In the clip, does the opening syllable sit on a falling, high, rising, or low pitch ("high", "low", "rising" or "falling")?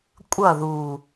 falling